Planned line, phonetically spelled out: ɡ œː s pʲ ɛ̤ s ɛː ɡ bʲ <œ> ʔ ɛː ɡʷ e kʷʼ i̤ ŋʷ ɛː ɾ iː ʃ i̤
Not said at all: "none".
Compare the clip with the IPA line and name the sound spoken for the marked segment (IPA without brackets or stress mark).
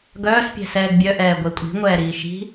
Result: œ